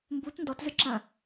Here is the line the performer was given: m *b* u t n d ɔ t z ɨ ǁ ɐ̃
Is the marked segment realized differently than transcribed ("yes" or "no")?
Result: no